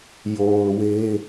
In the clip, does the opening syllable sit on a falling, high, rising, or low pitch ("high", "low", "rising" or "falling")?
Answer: low